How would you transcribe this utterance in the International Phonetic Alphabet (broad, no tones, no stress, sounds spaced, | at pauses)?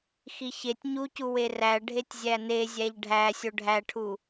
x i ç e tʲ ɲ u c u w e r æ ɖʱ e tʲ zʲ æ n e zʲ æ ʎ ɖʱ æ sʲ o ɖʱ æ ʈʰ u